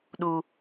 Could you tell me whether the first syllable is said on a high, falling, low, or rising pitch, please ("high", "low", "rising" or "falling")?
high